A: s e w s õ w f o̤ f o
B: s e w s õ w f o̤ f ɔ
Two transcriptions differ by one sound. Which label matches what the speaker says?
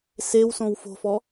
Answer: B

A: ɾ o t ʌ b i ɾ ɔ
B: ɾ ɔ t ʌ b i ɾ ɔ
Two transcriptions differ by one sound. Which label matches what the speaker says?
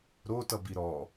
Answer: A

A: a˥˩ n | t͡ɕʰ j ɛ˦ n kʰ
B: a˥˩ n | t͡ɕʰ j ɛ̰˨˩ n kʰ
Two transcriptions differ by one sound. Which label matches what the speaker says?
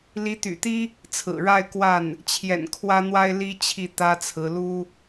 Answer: B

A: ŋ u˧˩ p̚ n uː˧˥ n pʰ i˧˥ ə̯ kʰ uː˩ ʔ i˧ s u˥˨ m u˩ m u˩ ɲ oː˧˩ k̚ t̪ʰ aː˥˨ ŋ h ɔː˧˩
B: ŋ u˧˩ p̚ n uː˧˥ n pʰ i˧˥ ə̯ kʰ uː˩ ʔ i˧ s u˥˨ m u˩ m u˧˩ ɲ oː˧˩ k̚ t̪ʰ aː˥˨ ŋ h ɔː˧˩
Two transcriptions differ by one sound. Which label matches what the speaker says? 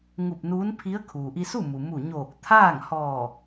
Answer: B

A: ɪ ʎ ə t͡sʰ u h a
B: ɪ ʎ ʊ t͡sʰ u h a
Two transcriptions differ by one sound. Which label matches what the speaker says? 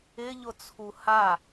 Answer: B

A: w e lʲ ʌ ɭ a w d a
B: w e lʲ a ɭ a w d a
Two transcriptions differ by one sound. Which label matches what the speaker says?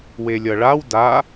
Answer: A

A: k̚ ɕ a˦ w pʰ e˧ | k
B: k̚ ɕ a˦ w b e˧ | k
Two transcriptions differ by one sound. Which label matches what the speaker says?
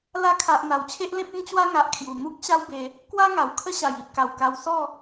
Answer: B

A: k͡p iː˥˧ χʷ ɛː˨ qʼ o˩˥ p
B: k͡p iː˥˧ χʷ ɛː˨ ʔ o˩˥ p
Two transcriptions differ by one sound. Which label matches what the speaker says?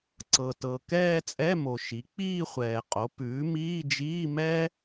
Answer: A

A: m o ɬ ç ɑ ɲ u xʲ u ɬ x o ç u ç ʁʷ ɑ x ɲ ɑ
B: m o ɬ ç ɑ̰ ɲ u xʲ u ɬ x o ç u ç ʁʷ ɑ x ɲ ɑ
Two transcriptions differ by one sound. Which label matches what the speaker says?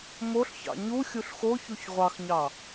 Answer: B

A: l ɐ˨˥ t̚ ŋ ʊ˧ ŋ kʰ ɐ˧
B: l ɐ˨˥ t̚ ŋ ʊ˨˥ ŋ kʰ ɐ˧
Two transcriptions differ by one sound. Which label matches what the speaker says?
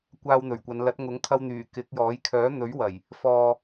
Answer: B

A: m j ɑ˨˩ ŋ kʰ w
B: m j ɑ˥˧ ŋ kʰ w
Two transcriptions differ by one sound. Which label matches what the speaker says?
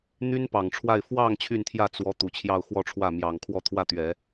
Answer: A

